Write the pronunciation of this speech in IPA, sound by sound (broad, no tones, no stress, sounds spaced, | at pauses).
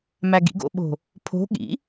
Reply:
m æ ɡ ḭ ɡ o̰ ɓ o̤ | pʰ o̤ ɠ ḭ